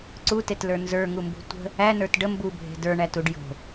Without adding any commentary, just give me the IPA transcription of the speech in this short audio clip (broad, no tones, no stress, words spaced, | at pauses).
ǀutetlə˞ nzə˞ŋumbṳ tʷə̤ | ænə˞t ɖə mbubʱe̤ də˞ɳætuɖ jo̤